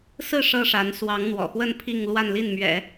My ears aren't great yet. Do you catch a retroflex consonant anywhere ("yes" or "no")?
yes